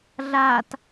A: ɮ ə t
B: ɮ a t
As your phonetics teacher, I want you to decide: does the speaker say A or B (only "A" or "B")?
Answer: B